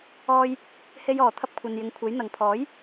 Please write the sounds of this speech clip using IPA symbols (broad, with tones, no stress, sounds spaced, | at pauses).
ɔː˧ j | h e˧ j ɔː˨˩ t̪ʰ ɐ˧ p̚ kʷʰ ɐ˨ n j ɪ˨ ŋ kʷʰ e˨˥ j n̪ ɐ˨ ŋ pʰ ɔː˨˥ j